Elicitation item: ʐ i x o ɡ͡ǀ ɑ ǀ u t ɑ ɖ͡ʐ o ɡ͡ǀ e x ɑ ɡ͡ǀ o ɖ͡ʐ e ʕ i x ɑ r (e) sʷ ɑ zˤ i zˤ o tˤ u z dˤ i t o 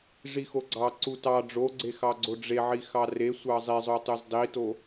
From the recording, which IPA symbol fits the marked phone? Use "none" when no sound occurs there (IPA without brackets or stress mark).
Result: e